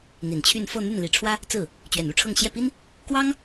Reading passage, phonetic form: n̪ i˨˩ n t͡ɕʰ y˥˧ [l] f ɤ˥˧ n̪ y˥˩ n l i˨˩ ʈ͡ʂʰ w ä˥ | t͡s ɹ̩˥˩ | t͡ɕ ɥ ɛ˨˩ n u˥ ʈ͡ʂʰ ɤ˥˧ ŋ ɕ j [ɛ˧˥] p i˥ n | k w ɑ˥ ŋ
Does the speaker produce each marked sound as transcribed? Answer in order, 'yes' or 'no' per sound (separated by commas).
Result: no, no